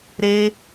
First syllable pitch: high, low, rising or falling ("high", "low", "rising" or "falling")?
high